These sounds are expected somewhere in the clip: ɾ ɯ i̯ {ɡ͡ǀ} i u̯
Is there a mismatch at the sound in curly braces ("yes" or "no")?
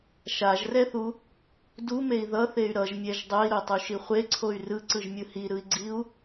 no